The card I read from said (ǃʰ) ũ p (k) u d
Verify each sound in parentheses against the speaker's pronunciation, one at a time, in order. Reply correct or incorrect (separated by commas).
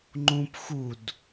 incorrect, incorrect